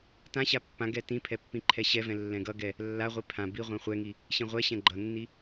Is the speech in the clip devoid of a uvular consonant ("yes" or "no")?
no